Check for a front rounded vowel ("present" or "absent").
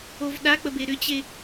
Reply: present